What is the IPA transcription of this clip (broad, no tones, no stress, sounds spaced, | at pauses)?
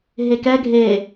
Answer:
ɦ e k ɛ ɡʱ e